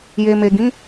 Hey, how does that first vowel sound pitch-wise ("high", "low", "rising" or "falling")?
low